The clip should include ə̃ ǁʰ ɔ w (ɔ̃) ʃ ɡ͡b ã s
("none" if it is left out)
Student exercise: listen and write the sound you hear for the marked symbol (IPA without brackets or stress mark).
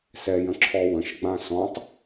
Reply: ə̃